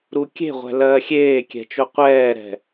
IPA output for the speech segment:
ɾukʲe̤ʁʷɛ̤ lɜːxʲeːkʲɛ̤t͡ʃo qʷɛːɾɛ̤

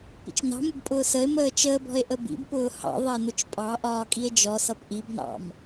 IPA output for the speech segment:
pḭt͡ʃnɑ̤mʊb pʼʊːsəe̯məː t͡ʃəːbɔ̤e̯ ʔəbḭbpʊː hɑ̰ðˤɛ nʊt͡ʃpʼɑʔɒː kʼie̯d͡ʒɔsʌp ʔibnɑ̰m

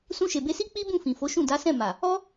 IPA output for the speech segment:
sũ˧ʃe˨be˧si˦ k͡pi˦ bũ˦˨fĩ˨fo˨˦ʃũ˦˨ da˨˦sɛ̃˦˨ma˨ | ɔ˦

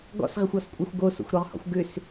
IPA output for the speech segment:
ɡɔ̰sʁɪxʷɔskʷʼaxʷ ɡoso̰xʷɾɔʁhɔ̰xʷ ɡʏs

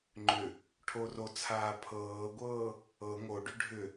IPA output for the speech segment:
ŋ͡ǃʏ | ʈʰorot͡sʰaː pʰɤːɡʷɤː | ɤ ŋoɖʏ ɖʱʏ

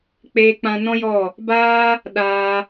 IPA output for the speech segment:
k͡peː˧k͡pã˧nɔ̃˦ jɔ˦˨ | baː˦ | ɗaː˧

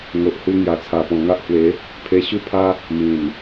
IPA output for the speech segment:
ŋo˨ʔhu˧ŋja˨˩ t͡sʰa˨˩pɔ̃˨˩ ŋa˦ʔhwe˨˦ | pʰe˧ɕu˥˧pʰa˦ | mĩ˨˩n

